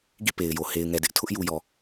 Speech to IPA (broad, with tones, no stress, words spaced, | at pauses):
ɡḭ˦˨ pe˨ɪ̯jo˨ he˨ɪ̯ŋɛ˨dɪ˦ʔtʰʊ˦ʔ ju˨jɔ˨